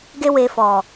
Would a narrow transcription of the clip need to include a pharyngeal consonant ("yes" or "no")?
no